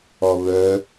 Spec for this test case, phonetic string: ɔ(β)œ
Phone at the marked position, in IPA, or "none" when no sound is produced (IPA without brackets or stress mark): β